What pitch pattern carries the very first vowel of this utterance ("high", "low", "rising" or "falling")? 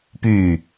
low